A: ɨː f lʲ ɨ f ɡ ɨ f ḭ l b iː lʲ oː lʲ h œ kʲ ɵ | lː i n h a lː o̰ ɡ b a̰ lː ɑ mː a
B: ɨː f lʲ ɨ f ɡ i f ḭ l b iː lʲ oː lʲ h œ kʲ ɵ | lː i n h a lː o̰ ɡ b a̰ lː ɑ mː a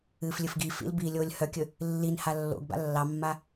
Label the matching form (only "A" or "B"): B